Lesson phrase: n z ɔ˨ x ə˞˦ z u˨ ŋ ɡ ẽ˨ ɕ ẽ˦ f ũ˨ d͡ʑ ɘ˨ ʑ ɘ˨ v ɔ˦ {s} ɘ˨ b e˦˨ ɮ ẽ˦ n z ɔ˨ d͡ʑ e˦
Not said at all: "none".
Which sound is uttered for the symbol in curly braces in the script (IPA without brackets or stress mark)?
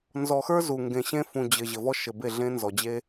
ʃ